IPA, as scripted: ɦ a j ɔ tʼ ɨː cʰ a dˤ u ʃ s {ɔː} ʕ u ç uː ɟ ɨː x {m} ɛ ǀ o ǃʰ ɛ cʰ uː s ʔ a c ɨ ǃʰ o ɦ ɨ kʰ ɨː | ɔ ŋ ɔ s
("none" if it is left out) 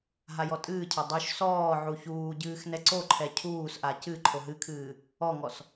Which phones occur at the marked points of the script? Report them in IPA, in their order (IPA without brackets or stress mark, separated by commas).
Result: ɔː, n